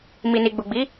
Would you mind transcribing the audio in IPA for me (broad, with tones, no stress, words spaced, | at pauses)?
mi˨ni˨ɡ͡bu˨ɡ͡bi˨˦